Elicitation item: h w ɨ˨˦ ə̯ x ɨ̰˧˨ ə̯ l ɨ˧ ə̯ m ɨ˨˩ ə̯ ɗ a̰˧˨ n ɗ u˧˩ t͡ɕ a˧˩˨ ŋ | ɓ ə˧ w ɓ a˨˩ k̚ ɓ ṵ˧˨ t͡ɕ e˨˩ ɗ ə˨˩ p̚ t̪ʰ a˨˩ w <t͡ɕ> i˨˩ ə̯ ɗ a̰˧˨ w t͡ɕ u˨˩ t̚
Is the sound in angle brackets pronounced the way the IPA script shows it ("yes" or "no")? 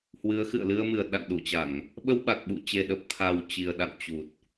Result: yes